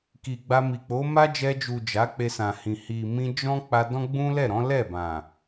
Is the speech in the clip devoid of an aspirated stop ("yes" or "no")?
yes